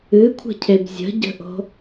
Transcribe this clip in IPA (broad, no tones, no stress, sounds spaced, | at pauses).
ɨ kʷʰ ə̤ cʰ e b zʲ ə̤ ɟ ə̤ ʔ o̤